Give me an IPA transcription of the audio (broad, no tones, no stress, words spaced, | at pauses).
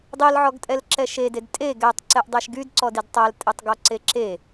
dˤilʕɔɡ tʼɛlǁɛʃeded tʼe ɡɛtˤ ǀɛʔdˤeʃɡyd ǀɔdidtˤæltʼetˤ ɡɔǀeǁe